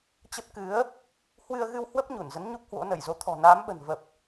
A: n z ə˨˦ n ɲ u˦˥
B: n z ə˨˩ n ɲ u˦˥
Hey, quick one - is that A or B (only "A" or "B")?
A